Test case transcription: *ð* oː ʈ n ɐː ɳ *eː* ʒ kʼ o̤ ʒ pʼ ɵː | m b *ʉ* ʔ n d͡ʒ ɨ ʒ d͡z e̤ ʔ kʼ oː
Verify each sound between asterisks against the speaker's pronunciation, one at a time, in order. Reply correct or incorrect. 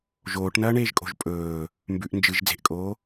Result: incorrect: ʒ, correct, correct

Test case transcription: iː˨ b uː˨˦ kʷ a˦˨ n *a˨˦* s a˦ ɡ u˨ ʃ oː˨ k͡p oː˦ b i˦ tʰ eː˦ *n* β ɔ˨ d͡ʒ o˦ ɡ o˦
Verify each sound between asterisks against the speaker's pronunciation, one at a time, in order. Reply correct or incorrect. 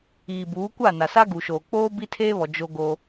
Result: incorrect: a˨, incorrect: none

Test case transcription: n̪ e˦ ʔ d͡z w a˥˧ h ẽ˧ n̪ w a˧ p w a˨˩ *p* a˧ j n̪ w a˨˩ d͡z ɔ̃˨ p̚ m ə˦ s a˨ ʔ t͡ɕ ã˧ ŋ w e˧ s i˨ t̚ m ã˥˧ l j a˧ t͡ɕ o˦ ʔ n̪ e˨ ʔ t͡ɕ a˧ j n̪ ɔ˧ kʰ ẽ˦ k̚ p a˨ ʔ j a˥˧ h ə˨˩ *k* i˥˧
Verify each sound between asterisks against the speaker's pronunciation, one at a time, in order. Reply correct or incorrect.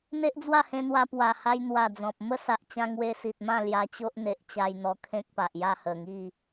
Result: incorrect: h, incorrect: ŋ

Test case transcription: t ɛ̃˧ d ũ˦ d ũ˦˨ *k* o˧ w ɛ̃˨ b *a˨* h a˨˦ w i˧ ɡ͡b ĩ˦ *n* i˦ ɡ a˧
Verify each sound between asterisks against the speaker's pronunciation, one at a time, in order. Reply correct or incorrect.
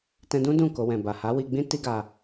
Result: correct, correct, incorrect: t

